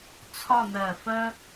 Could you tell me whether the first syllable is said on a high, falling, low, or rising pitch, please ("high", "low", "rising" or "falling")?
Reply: falling